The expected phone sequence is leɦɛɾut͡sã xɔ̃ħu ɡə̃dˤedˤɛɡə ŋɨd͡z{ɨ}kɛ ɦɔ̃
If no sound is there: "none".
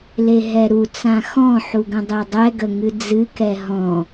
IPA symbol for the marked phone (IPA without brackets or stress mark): ɨ